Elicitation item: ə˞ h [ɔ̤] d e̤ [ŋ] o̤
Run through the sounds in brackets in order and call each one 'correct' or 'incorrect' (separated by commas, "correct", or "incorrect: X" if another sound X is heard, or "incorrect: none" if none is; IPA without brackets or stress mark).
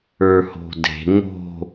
incorrect: o̤, correct